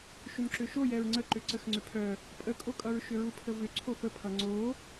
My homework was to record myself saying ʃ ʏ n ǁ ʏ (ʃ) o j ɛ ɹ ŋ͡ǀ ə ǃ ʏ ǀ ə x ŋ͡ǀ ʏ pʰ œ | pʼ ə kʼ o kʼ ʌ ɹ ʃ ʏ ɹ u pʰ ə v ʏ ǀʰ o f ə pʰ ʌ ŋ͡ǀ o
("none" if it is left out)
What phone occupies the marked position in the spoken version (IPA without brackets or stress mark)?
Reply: ʃ